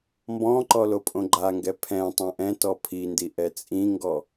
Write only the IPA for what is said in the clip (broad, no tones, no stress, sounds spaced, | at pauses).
m b ɔ̃ ǃ ɔ l o pʼ õ ɡ͡ǃ a ŋ ɡ ɛ pʰ ɛ̃ tˤ õ ʔ ɛ̃ t ɔ pʰ i n d i ʔ ɛ t͡sʼ ĩ ŋ ɡ ɔ